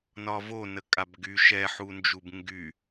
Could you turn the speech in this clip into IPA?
nɒvo nəkʼabɡy ʃɛħund͡ʒub ŋɡy

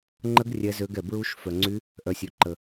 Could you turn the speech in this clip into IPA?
ŋ͡ǃə˦˥ɡ rʲɛ˦˥zø˦˥ɡɛ˧ bɹu˦˥ʃ fœ˧ŋ͡ǀy˦˥ | ʔœ˧sʲø˧ǃə˧

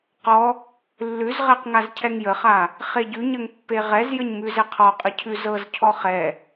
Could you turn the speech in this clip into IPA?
qɔ | lːʉzʁɛq ŋazcʰɛŋjəχa | χeɟʉɲəŋ pːeʁɛzjəɲ mʉzɛqʰɔqʼə cʰʉzɤzcʰɔ χɛ

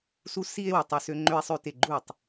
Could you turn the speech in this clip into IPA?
su˦si˦e̯ wu˨tˤø˦sø˦ ŋ͡ǃø˦e̯sˤø˦te˦˨ ɡ͡ǃu˦˨tˤ

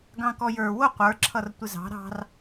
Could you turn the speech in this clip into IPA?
ɡɑ̃kɔjə˞ wʊ qʷə˞ ǁʰʌrtʷɪzɑ̤ ɾɑ̤r

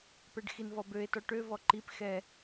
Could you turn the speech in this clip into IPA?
pɛɖxinvɔbøe̯ tɔʈø vɔǃip xɛ

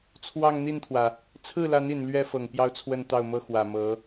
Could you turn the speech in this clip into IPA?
t͡sʰwɑ˥˧ŋn̪i˥˩nt̪ʰwä˩ | t͡sʰɹ̩˥˩la˧˥ni˨˩n lɥɛ˥fɤ˨˩ŋ pjɑ˥˧ʊ̯t͡sʰwə˥˧n t̪ɑ˥˩ʊ̯mɤ˥xwä˨˩mɤ˧˥

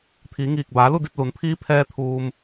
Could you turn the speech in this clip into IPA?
t̪ʰiː˩˧ŋiː˧˩k̚ baː˩˧lu˥˨ di˥˨t̚lu˩˧n pʰiː˧˥pʰɛː˧ t̪ʰuː˧m

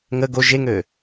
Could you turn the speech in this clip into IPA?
ŋə ɡo ʒeŋø

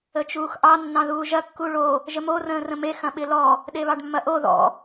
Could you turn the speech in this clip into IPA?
ət͡ʃuːxʔɑ nːɑ̃ðuːʒɐ kːuɭo | ʒəmo rə̃ːrə̃me xɐ̃ɓɪlɔ | ɗeβɑɖmːɐʔo ðɔ̰

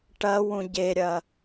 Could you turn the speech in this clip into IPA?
ʈɐwũ ɟeɾʲɐ

